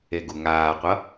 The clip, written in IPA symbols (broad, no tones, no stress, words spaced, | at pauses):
eɡuŋaːqʷʌ